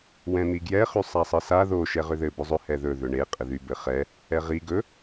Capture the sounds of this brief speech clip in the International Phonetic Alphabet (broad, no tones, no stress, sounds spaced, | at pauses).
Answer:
w ɛ̃ n̪ i ɡ j ɛ χ y sˤ a sˤ ɘ s a ð o ʃ ɛ ʁ ʏ ð ɘ b ɵ zˤ ʏ h ɛ ð ɵ ð ʏ ɳ e qʼ ɘ ð y b ɘ χ ɛ | ɛ ʁ i ɡ ɵ